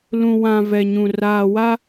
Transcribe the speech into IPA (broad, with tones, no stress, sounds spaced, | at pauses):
l ũ˨ w ã˨ v ɛ˨ ɲ ũ˨ r aː˨ w a˦